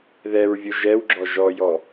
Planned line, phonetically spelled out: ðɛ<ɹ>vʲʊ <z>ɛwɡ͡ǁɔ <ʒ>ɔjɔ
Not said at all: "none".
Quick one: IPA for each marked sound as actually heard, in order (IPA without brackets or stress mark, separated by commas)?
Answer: ɹ, ʒ, ʒ